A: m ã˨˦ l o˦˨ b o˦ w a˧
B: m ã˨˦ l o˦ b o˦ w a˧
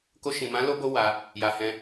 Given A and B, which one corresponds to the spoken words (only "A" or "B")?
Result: B